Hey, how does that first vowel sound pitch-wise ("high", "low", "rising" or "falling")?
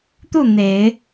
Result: falling